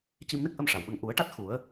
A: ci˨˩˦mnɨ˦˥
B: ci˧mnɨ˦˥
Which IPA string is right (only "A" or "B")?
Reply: B